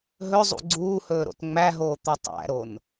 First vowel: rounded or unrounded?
rounded